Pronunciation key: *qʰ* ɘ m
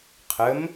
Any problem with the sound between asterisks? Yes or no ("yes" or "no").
no